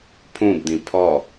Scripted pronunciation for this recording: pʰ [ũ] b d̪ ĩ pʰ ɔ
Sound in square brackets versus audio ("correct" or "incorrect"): correct